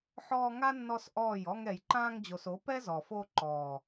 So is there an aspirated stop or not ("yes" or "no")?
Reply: no